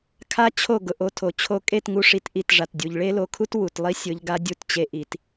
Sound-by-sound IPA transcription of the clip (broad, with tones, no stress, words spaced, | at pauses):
kʰa˦t͡ɕʰo˦˨ ɡʊ˨ʔo˧tʰo˨ t͡ɕʰo˧kʼe˦˨tŋu˧ ʂi˧tʔi˦˨tʐa˨t dʲu˨ʎ ɭe˦lo˧kʰu˦t wu˨tlˠi˦sʲʊ˧ʎɡa˧ dʲu˧t t͡ɕe˧ʔi˨t